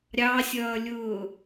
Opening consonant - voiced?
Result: yes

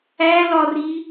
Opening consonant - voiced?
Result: yes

